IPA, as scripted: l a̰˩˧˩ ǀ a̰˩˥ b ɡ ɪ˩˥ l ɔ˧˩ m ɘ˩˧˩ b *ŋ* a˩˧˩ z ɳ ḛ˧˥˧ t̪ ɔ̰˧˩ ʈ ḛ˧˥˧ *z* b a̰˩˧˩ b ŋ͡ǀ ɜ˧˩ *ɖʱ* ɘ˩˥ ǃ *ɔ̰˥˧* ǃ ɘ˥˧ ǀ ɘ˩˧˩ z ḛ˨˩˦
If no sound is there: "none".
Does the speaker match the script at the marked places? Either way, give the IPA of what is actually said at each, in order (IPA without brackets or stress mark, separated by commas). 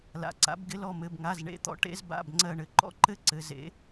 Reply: ŋ, z, ɳ, ɔ̰˥˧